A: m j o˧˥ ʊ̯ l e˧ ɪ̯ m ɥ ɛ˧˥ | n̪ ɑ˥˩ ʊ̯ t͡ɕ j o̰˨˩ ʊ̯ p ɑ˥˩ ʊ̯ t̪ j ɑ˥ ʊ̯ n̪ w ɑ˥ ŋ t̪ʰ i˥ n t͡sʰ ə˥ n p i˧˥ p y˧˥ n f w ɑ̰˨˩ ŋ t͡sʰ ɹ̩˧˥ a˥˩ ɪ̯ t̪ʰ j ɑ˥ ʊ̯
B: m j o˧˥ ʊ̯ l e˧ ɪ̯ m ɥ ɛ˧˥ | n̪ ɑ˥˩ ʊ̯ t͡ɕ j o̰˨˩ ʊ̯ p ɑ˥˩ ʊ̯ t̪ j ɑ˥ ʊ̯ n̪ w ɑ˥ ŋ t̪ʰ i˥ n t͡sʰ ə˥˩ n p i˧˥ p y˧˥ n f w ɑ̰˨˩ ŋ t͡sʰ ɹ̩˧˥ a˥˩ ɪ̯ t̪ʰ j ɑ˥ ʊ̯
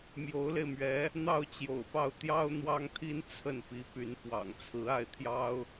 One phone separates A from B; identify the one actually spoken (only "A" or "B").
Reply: B